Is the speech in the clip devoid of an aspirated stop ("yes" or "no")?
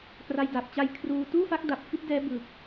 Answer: no